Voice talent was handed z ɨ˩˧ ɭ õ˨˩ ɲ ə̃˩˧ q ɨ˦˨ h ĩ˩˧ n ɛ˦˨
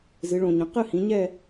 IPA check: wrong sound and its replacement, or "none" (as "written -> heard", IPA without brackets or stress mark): n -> ɲ